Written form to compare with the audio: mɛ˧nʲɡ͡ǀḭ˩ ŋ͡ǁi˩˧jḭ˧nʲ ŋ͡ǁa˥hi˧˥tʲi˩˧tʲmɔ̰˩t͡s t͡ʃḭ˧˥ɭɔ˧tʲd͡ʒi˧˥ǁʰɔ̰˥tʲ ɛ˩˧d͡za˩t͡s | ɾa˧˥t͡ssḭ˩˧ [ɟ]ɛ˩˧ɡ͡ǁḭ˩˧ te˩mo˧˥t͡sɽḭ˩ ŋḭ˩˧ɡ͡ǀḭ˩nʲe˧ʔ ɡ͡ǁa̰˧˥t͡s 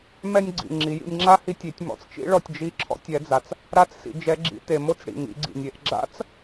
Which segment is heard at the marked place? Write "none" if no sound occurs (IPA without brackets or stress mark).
d͡ʒ